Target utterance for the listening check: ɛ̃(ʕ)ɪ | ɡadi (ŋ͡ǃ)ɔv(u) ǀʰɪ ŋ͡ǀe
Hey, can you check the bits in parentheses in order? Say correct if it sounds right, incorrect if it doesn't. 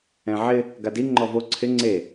correct, correct, incorrect: o

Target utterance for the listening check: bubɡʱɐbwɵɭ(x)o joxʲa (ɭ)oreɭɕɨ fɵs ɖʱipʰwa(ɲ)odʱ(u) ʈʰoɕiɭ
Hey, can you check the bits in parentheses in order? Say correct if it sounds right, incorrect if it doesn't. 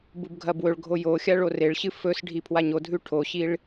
incorrect: ɡʱ, correct, correct, incorrect: ʉ

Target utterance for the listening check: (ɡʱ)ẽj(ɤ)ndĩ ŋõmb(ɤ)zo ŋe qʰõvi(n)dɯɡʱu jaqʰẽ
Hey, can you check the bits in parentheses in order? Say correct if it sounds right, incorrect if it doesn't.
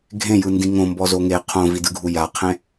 correct, incorrect: ɯ, incorrect: ɔ, incorrect: none

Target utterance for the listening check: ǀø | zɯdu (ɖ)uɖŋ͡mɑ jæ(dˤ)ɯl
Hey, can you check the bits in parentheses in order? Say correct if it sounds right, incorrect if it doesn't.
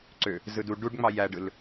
correct, incorrect: ɖ

